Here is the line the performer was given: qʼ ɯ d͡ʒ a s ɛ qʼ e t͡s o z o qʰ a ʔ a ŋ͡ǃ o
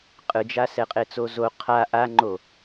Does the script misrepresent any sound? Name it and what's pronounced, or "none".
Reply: none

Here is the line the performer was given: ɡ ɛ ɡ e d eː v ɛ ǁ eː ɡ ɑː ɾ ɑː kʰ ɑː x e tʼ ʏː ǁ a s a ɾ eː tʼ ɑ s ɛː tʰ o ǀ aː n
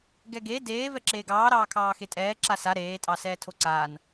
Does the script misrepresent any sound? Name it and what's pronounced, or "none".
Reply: ʏː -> ɛː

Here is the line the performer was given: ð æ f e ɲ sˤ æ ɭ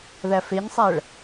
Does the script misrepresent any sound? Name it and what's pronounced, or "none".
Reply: none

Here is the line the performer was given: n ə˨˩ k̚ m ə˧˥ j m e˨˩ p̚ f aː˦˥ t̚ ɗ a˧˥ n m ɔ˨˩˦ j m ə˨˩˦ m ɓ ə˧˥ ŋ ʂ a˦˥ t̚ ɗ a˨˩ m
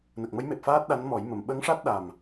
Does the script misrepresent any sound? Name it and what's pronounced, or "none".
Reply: none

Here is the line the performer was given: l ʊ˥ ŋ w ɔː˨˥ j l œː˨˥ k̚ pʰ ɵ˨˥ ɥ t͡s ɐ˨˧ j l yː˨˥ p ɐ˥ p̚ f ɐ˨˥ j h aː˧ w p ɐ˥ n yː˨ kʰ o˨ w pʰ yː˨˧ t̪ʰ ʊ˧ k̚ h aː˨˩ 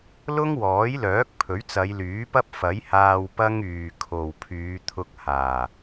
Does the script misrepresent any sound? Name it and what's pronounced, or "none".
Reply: n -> ŋ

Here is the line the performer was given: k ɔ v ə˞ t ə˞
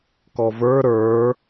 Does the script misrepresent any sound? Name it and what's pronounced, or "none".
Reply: t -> ɾ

